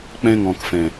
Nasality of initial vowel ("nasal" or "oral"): nasal